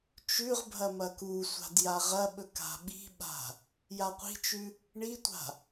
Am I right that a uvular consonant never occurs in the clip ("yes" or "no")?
no